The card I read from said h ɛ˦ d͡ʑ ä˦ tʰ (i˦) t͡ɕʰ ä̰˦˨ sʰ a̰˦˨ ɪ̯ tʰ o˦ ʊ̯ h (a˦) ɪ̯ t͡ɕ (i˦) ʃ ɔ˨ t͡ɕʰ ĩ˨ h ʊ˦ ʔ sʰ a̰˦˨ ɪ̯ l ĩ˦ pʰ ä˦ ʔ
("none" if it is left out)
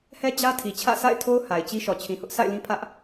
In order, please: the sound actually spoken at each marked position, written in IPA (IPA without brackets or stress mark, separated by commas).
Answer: i˨, a˨, i˦